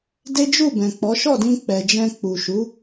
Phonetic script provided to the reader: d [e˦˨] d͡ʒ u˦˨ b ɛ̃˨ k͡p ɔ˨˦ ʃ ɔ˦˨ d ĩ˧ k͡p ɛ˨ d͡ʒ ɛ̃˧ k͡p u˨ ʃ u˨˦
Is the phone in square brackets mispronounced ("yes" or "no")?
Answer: yes